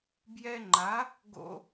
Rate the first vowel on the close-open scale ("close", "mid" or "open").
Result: mid